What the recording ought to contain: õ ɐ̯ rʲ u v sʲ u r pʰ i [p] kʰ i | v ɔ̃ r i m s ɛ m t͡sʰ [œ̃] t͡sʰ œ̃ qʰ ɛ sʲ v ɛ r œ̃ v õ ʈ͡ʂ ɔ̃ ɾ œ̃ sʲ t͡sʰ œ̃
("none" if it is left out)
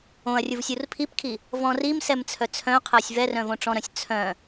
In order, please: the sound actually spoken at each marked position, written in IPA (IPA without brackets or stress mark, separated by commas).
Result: p, œ